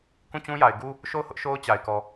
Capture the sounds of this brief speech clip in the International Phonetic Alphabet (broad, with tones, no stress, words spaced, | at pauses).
kũ˦˨t͡ɕũ˦ja˨ɪ̯ɡu˦ | ʃo˦˨ʊ̯hʊ˦ʔ ʃo˦ʊ̯t͡ɕa˨ɪ̯kɔ˨